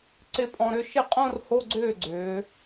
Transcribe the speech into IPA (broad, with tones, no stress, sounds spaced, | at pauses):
ǀ ɪ˥˧ pʼ ɔ̃˧ ɾ ʏ˥˧ ʃ ɪ˥˩ qʼ õ˥˧ r h o˧˥˧ ɡ͡ǀ ʏː˥˩ ɡ͡ǀ ʏː˩˧